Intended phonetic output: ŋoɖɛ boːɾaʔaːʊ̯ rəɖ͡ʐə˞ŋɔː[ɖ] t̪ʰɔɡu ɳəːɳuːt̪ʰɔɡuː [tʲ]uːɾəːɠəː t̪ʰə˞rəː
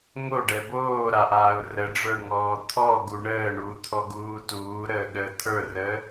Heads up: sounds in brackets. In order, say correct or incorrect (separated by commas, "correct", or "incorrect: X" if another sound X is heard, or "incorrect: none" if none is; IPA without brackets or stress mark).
incorrect: none, incorrect: t